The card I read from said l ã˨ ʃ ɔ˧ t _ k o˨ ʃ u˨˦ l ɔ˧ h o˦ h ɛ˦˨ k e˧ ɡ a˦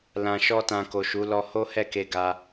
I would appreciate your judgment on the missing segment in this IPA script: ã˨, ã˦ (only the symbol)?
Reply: ã˨